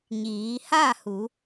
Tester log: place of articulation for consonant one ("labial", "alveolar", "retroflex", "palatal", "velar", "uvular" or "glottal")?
palatal